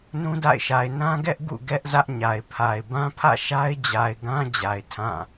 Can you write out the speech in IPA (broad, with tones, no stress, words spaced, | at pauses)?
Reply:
nũ˦da̰˦˨ɪ̯ʃa˨ɪ̯ nã˦ɡɛ˦ʔ ɡṵ˦˨ ɡɛ˦ʔ zä˦ʔɲa˨ɪ̯pʰa˨ɪ̯ bã˦pʰä̰˦˨ ʃa˦ɪ̯d͡ʑa˨ɪ̯ɡã˦ d͡ʑa˨ɪ̯tʰã˦˨